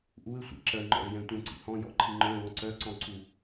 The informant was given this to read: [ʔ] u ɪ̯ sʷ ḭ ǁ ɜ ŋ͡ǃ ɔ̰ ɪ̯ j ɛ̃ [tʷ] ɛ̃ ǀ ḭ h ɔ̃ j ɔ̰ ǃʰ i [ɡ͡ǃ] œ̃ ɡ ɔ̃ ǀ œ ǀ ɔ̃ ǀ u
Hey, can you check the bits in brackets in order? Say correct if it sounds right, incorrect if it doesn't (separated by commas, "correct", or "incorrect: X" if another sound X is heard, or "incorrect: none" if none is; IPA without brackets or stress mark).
correct, correct, incorrect: ŋ͡ǃ